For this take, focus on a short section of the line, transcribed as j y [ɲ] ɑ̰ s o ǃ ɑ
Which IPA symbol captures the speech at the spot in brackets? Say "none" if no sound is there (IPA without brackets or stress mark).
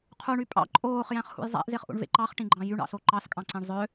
ɳ